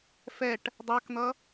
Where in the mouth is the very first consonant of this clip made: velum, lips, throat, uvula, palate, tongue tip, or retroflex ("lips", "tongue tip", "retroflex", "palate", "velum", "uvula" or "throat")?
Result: lips